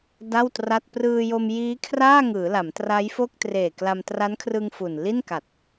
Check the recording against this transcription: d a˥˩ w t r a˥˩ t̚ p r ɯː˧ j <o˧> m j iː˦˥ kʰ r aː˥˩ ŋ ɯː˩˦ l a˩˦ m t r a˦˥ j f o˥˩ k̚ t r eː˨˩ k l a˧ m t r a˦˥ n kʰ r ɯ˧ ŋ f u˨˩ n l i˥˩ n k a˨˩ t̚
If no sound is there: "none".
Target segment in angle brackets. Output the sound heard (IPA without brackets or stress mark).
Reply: o˧